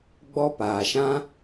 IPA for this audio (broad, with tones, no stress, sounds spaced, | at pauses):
ɡ͡b ɔ˦ p aː˨ ʃ ã˦